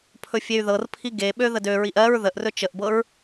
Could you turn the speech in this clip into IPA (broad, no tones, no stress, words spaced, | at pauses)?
pʰɵfʲey̯ðɤrpʰi ɡeɓø ðədøɹiʔ ɜɹ ðəʔrɵ t͡ʃəʔbɤɹ